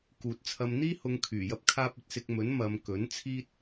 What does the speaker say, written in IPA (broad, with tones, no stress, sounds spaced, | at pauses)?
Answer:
k uː˨ t̚ t͡sʰ ɐ˧ m n̪ iː˥ h ʊ˨˧ ŋ kʰ yː˨˩ j ɐ˥ p̚ kʰ aː˥ p̚ ɵ˧ t̚ s ɪ˧ k̚ m ɵ˨˥ n m ɐ˨˧ m k ɵ˨˥ n t͡sʰ iː˥ t̚